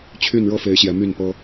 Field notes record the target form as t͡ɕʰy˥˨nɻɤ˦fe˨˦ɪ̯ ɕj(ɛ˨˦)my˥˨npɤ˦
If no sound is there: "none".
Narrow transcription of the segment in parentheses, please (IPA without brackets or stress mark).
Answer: ɛ˨˦